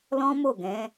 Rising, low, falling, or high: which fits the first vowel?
high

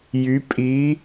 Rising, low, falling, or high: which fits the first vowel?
rising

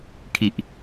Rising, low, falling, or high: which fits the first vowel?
low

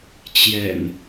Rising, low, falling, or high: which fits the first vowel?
low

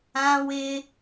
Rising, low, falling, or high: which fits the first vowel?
high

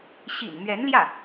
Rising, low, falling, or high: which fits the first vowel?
low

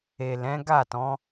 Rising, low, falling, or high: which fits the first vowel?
low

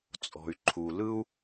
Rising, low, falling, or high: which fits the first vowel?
low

